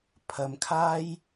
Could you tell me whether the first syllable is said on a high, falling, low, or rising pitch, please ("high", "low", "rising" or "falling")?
low